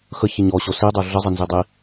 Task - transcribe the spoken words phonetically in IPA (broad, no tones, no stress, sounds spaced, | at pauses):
x ə ç ɪ ɲ ɔ ɕ o s i dˤ o ɮ ə zˤ ɪ n z i dˤ i